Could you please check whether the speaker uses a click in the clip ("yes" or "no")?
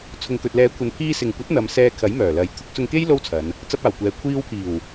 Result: no